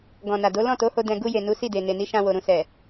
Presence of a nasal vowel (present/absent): present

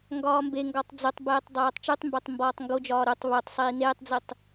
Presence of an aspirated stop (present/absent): absent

